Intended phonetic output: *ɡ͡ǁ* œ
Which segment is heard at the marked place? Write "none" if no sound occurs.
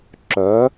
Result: ǁ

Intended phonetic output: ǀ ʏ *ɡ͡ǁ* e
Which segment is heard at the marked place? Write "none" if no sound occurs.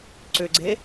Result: ɡ͡ǀ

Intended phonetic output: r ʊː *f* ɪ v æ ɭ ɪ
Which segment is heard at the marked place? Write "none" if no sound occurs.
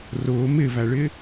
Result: m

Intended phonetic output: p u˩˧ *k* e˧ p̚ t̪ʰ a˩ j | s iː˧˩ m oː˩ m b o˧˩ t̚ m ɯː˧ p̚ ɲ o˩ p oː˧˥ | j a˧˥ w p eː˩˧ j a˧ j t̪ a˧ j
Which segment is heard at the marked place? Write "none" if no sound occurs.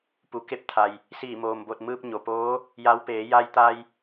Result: k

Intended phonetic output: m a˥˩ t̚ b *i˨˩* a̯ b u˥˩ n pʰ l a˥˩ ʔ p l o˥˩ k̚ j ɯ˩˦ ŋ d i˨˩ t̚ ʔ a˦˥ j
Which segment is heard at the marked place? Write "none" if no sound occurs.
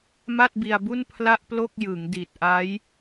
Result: i˧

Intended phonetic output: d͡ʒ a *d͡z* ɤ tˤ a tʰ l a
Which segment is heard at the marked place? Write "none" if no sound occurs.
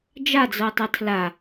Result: d͡z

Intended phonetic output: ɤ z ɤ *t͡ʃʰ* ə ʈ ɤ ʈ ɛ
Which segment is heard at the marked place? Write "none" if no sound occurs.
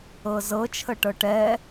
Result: t͡ʃʰ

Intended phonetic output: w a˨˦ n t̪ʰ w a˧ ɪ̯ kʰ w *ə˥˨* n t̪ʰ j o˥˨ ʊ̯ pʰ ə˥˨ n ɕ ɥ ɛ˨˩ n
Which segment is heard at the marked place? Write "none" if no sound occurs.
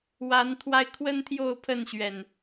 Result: ə˦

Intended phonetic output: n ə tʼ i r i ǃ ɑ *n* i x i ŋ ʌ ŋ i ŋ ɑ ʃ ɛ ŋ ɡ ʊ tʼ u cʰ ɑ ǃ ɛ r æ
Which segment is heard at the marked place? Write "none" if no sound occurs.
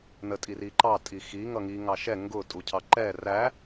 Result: tʼ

